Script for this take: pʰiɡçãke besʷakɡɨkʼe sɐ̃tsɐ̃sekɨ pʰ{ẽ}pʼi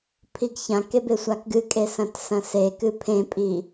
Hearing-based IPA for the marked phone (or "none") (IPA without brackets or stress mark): ẽ